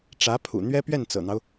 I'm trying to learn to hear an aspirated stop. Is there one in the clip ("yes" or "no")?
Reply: yes